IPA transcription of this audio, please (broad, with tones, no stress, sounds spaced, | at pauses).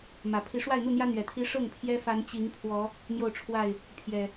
m ä˨˩ pʰ i˨˦ ʂ w a˥˨ ɪ̯ n̪ u˥˨ n̪ j ä˦ n̪ ɥ ɛ˨˩ t̪ʰ i˦ ʂ ɤ˥˨ ŋ pʰ j ɛ˦ f a˨˦ n t͡ɕ i˨˦ ŋ pʰ w ɔ˨˦ | n̪ j o˥˨ ʊ̯ ʈ͡ʂʰ w a˥˨ ɪ̯ | pʰ j ɛ˨˩